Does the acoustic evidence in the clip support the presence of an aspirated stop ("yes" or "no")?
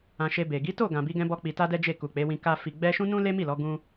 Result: no